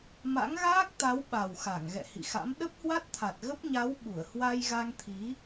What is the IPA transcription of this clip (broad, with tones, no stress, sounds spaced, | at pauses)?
m a̰˧˥ ŋ ɣ aː˦˥ k̚ t̪ a˨˦ w ɓ a˨˩ w x a˧˩ ŋ ɣ ɛ̰˧˨ h ḭ˧˨ x a̰˧˥ m ɗ ə˦˥ p̚ h w a˦˥ t̚ t̪ʰ a˨˩ t̚ ɣ ə˦˥ p̚ ɲ a˨˦ w ɓ u˧˩ ə̯ h w a˧ j ɣ a˧ ŋ t̪ʰ i˨˦